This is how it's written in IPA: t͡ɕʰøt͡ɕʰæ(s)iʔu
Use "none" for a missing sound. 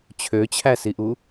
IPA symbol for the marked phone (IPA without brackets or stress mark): s